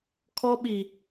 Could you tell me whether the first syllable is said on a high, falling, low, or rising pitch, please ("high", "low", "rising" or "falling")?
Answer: high